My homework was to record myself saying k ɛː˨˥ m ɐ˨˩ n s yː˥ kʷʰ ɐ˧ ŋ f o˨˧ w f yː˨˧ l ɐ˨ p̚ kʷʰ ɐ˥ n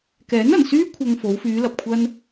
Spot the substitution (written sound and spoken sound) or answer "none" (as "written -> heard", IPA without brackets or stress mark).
m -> n